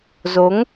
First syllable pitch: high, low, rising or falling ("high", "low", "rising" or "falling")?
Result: rising